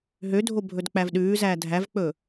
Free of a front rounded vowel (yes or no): no